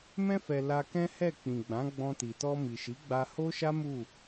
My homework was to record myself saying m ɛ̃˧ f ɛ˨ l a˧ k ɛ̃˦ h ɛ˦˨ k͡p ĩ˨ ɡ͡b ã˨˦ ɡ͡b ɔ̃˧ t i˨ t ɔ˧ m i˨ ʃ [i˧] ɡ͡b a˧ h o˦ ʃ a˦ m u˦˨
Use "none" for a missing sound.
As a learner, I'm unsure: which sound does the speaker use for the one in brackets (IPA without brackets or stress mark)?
i˨˦